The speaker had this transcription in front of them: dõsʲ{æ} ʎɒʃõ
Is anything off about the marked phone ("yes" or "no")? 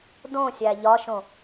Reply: no